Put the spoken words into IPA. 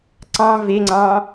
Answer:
ǀɑ̃ veŋ͡ǀɑ̃

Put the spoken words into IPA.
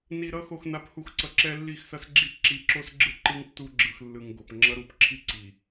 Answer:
ni˨ɾʌ˦ xo˨xna˨˦phu˨xǀʌ˨ ǁɛ˦lːi˦˨xsʌ˦sɡ͡ǁi˦ ǁi˨˦ǁo˦sɡ͡ǁɯ˦ ǃɯ˦ŋtːu˦ɡ͡ǁɯ˨xlːɯ˨ŋ ɡo˨pŋ͡ǁʌ˦ɾu˦p ǁʰi˦ǀi˨

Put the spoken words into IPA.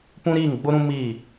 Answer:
pũ˦ɾiː˦˨ŋɡ͡bʊ˦ɾũ˦ miː˦˨

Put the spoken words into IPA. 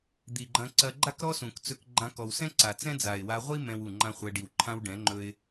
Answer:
d̪i˨ ɡ͡ǃɐ̃˧ǀɐ˧ɡ͡ǃa˦kɾɔ˦ sũ˨kt͡sɵ˧k ɡ͡ǃã˧kɔ˨wsɛ̃˦ ǀa˨t͡sɛ̃˦d͡za˨ɪ̯ wa˧ʁʷi˦ mɛ̃˦wu˦˨ ŋ͡ǃã˦χʷɛ˧ɖi˨w ǃʰã˦wɖɛ̃˨˦ŋ͡ǃɵ˦ɪ̯

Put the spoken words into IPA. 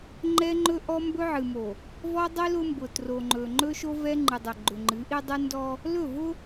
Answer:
ŋ͡ǃɛ˦ŋ͡ǃɵ˦ ʔɔ˦mbɵ˦ʕɨ˨mo˨ | vɔ˦dˤi˦ lʊ˦mbʊ˨ tro˨ŋ͡ǃɵ˨ŋ͡ǃɵ˦ ʃo˦vɛ˦ŋ͡ǃɨ˨dˤʏ˨ ɡ͡ǃʏ˨ŋ͡ǃɨ˨˦ʔi˦dˤɨ˦ ndɔ˦ | lɵ˦˨vʊ˦

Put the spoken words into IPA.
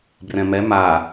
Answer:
brɛ̃mɛ ma

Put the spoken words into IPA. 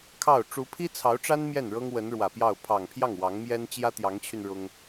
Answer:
kʰɑ˥˩ʊ̯ ʈ͡ʂu˧˥pʰi˥t͡sʰɑ˧˥ʊ̯ʈ͡ʂa˥n mjɛ˥˩nɻɤ˥ŋ wə˧˥nɻwä˨˩pjɑ˥˩ʊ̯ pʰɑ˨˩ŋpʰjɑ˥˩ŋ wɑ˧˥ŋmjɛ˥n t͡ɕjä˥t̪jɑ˧˥ŋt͡ɕʰy˧n ɻʊ˥ŋ

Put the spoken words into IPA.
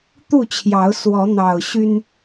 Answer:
t̪u˥˨t͡ɕʰjɑ˨˦ʊ̯ swɔ˨˦n̪ɑ˨˩ʊ̯ɕy˦n

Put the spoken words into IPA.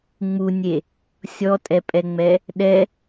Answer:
ŋ͡munʲe | sʲɔtʼɛpʼɛŋ͡mɛ | ɗɛ

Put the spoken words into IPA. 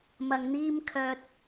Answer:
mɐ˨ŋn̪iː˥mkʰœː˧t̚

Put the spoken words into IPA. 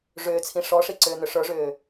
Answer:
ʐʏːt͡sʰĩ ʂɔʂiǀʏːn̪ʏ ʂə˞ʐʏː

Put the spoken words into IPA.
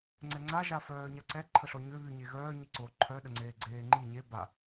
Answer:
ŋ͡ǀɛŋ͡ǀa ʒafœːɲaǀɛ ǃʰəɬɔɲø βyɲeɣœː ɲiǀo ǃʰœ ɗəŋ͡ǀeːɡ͡ǀeːŋ͡ǃi ɲe ba

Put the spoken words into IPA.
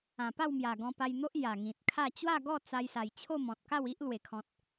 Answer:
ã˨˩pa˥˧wmja˨˩ ɡɔ̃˧pa˧jn̪o˦ʔ ja˨˩ŋĩ˨t̚kʰa˥˧ t͡ɕwa˥˧ɡɔ˥˧ t͡sa˧jsa˨˩j t͡ɕʰo˥˧mɔ̃˨t̚ka˥˧w i˦ʔ lwe˨˩kʰɔ̃˨t̚

